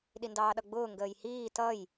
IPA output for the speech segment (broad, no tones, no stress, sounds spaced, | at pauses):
ɗ i n d ɑː ɗ ʌ ɡ͡b ʊː ŋ ɡ əː j h iː t ʌ j